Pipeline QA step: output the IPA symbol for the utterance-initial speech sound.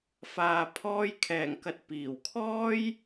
f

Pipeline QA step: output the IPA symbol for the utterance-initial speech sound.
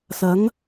s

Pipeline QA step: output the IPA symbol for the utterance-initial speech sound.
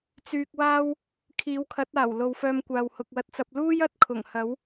t͡s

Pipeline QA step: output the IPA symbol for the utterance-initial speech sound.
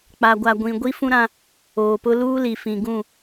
k͡p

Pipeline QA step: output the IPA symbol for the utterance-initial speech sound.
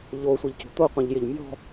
ʎ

